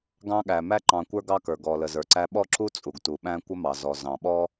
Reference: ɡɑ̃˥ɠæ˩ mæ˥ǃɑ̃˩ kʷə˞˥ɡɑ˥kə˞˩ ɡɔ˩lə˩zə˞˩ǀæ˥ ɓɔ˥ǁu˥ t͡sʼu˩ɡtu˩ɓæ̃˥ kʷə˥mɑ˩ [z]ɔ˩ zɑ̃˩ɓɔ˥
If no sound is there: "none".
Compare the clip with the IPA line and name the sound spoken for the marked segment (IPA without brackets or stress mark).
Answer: z